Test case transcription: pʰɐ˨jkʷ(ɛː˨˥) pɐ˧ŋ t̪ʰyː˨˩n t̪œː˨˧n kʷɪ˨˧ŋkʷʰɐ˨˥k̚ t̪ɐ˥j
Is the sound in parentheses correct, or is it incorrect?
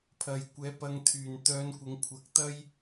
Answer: correct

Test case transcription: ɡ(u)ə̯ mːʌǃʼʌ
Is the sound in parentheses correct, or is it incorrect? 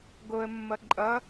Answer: incorrect: o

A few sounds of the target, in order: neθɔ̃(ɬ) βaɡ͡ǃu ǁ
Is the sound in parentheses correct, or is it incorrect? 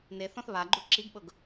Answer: incorrect: θ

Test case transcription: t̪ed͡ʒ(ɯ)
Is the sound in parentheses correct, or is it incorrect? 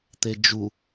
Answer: incorrect: u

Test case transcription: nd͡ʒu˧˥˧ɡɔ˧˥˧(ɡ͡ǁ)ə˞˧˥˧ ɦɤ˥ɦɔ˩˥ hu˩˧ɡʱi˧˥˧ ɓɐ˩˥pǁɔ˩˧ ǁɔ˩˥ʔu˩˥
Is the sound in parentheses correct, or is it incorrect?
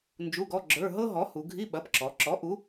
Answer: correct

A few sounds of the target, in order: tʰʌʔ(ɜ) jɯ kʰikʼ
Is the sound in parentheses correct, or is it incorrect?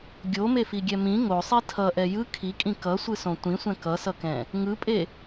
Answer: incorrect: ɛ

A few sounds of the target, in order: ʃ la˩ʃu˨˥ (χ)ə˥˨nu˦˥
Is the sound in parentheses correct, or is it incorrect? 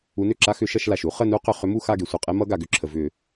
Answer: correct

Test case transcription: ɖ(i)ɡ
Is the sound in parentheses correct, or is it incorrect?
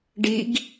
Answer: correct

